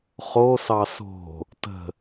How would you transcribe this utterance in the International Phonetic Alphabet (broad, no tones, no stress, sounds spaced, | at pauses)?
χ o s ɑ s o̤ | t ə̤